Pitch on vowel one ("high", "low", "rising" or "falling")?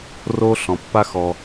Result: high